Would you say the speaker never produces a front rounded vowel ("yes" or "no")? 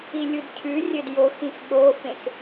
yes